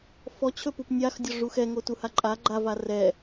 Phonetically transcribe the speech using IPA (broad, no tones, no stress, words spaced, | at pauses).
fɔt͡ɕʰɵpup nʲaxdʲɔ ʐuxɛŋotu haǃʼa ɡ͡ǃa varɛ